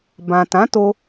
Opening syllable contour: low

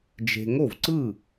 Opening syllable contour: low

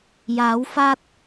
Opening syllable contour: rising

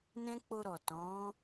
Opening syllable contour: high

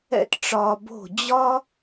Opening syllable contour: high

